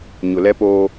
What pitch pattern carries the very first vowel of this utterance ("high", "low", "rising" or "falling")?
low